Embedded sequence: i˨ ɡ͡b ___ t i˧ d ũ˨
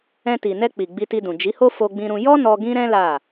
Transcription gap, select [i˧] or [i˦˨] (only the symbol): i˧